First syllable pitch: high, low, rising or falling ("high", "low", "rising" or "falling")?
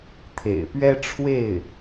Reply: low